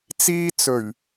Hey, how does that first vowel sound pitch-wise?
high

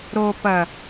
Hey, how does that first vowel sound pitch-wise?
low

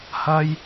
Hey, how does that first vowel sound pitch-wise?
high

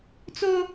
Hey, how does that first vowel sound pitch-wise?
high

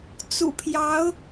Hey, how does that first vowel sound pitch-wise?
low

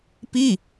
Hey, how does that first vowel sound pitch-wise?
falling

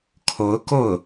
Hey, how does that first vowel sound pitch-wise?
rising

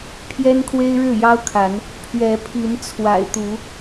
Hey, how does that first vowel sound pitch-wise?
high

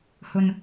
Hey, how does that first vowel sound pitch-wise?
low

